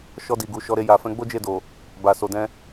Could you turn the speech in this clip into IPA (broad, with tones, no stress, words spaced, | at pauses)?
ʃɔ˧di˨ɡu˨ ʃɔ˨˦ɾe˧ ja˨fɛ̃˧ɡ͡bo˦ d͡ʒe˦˨do˨ | ba˨so˨dɛ̃˧